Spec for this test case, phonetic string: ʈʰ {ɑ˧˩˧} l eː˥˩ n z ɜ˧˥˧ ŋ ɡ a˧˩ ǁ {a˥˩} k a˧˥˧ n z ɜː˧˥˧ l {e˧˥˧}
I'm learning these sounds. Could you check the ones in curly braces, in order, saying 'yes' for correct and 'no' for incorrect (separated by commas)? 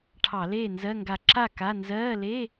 yes, yes, yes